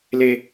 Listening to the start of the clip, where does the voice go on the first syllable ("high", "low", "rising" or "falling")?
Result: high